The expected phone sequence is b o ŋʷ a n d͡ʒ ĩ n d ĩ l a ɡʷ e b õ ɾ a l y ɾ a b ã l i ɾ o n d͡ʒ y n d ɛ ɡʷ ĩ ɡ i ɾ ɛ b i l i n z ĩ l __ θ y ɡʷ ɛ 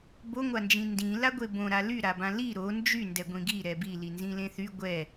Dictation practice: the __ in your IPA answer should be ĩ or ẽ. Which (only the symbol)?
ẽ